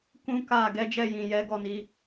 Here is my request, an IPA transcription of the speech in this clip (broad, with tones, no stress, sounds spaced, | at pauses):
k ũ˦ k a˦˨ ɡ ɛ˨˦ d͡ʒ ɛ˦˨ j ĩ˨ j ɛ˨˦ ɡ ɔ˦˨ n i˨˦